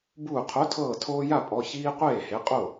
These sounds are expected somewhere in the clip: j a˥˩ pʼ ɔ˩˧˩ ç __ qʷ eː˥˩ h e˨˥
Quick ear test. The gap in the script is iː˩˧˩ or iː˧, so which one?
iː˧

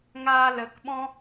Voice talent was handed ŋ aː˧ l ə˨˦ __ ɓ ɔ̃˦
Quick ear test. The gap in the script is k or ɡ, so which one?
k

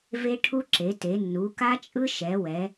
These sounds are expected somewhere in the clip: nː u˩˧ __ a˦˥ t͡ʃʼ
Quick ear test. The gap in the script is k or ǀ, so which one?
k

